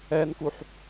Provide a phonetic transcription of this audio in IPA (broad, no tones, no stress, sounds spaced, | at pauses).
ɛ n k u ħ